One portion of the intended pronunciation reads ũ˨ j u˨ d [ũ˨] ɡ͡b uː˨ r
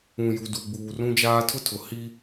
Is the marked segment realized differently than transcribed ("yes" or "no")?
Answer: yes